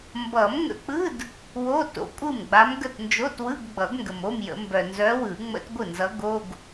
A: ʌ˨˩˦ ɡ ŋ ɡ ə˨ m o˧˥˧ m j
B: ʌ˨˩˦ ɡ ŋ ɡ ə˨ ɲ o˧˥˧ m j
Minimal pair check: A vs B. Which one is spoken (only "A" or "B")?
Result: A